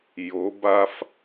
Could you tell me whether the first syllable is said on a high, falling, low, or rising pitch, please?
rising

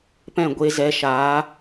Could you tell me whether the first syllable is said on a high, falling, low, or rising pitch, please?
falling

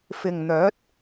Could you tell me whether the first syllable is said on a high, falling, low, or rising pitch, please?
low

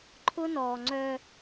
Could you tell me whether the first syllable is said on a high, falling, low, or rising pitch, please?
high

